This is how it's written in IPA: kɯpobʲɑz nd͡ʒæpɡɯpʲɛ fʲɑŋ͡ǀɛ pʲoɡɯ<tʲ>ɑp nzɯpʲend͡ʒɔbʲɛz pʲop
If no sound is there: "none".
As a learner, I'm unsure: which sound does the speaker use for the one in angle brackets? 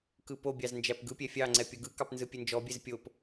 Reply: k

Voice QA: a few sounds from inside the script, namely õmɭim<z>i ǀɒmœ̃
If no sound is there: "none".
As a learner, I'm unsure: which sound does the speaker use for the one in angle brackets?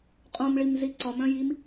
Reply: z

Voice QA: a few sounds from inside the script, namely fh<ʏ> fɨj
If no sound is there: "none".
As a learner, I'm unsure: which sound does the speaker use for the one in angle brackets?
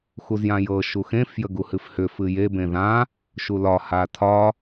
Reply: ʏ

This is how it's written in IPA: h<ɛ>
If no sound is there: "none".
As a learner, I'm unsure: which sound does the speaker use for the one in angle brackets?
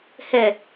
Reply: ɛ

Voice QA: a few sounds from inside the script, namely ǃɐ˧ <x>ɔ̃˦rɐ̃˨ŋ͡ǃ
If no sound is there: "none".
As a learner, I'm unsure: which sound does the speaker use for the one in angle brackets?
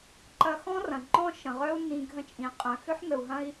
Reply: x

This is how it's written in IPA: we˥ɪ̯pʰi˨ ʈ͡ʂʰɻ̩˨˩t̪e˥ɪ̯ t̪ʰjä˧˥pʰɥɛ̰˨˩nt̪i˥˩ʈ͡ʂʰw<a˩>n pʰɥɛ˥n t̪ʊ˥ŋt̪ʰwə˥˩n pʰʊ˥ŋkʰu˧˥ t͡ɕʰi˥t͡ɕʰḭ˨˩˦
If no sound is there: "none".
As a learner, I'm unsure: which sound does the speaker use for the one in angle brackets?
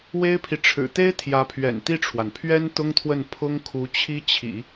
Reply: a˩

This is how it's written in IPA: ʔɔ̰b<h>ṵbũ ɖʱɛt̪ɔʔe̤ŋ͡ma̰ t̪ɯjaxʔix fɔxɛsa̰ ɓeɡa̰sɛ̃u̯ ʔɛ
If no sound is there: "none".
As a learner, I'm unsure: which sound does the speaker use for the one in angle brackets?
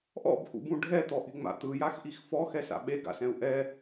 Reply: h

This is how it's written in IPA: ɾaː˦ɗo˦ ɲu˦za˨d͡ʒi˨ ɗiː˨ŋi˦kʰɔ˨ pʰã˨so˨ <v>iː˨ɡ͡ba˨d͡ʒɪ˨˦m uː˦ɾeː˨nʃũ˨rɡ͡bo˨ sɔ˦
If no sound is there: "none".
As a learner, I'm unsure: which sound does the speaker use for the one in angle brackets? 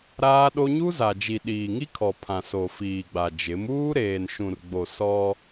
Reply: f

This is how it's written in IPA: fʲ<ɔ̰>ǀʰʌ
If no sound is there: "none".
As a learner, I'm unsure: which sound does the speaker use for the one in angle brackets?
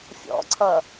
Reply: ɔ̰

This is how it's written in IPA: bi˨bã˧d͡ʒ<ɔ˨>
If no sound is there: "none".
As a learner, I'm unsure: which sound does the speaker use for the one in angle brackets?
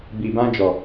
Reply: ɔ˨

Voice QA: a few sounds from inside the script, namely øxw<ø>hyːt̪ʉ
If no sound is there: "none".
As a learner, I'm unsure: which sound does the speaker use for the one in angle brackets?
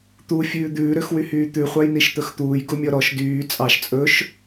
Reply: y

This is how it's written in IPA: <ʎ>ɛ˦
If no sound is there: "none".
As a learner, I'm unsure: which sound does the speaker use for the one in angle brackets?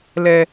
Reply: l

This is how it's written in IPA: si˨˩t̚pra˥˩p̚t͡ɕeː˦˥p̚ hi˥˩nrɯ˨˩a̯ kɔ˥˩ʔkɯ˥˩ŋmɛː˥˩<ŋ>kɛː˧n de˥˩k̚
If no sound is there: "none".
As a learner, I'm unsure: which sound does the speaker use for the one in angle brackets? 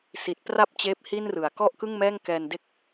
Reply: ŋ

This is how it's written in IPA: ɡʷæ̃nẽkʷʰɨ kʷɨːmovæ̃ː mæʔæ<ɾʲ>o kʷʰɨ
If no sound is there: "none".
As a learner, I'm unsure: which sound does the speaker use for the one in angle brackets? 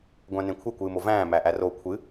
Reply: r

